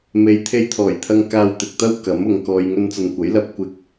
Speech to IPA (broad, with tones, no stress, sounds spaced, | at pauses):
m e˨˧ j t̪ʰ e˧ j t̪ʰ ɔː˨˩ j t̪ʰ ɐ˧ ŋ k aː˧ w t̪ ɪ˨ k̚ t̪ ɐ˥ w k ɐ˨˥ m ʊ˨ ŋ k ɔː˧ j ŋ ɵ˧ n t͡s ɐ˨ n kʷ ɐ˨˥ j l ɐ˧ p̚ kʷ ɪ˧ k̚